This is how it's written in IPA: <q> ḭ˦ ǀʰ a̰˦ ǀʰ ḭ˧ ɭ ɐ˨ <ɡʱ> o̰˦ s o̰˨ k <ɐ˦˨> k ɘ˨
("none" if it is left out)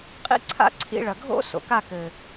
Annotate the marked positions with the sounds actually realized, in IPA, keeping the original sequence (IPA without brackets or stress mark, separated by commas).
qʼ, ɡʱ, a˦˨